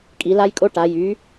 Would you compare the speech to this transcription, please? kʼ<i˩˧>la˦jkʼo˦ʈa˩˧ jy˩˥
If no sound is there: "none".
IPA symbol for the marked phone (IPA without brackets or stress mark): i˩˧